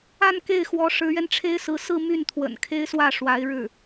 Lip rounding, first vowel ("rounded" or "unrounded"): unrounded